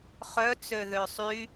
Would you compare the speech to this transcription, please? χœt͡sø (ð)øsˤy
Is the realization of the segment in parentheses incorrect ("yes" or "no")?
no